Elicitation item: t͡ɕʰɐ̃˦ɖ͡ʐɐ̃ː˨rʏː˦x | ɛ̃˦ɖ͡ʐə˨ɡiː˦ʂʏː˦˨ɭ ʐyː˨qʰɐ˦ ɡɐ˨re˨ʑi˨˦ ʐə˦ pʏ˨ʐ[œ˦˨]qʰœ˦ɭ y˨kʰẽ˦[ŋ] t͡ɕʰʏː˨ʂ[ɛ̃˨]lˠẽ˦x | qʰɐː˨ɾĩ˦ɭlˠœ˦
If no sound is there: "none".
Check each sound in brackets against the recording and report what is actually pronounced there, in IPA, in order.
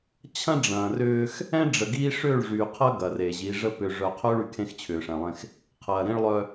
œ˨, x, ɛ̃˨

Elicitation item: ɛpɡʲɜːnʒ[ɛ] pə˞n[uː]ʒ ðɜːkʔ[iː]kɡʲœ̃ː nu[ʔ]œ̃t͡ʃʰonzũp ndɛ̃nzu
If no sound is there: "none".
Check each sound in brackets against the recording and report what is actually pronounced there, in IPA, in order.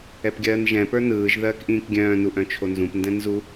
ɛ̃, ɯː, ĩː, ʔ

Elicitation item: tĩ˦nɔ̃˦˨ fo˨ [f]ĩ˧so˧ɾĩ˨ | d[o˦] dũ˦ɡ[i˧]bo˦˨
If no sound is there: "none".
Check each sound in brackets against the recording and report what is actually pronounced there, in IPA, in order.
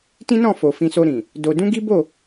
f, o˧, i˦

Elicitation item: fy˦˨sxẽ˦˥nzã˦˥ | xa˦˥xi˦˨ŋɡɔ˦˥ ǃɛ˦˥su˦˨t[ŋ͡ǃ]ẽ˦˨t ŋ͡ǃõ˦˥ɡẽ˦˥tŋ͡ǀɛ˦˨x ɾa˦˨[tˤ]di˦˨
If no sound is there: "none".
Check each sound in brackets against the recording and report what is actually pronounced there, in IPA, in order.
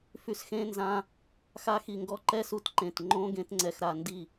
ǃ, n

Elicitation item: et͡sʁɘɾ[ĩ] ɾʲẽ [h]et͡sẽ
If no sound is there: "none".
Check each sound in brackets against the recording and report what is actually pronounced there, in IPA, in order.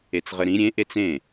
ĩ, ʔ

